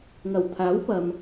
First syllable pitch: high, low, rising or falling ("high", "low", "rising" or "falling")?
low